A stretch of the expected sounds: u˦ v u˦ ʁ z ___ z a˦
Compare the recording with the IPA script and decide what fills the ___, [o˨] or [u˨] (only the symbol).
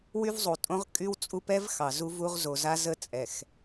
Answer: o˨